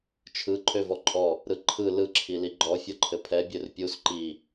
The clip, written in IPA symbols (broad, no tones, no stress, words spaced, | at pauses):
t͡ʃʰɯ ǃʰøvɔǃʼɔ | ɾɯǃʰɯ lɯ ǁʰiliɡ͡ǃɔ fʲɔǃʰɘpʰɛ bʲørpʲus ǃi